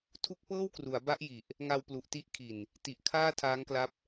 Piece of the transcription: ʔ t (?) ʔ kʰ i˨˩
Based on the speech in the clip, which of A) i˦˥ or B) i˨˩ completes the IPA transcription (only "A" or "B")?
A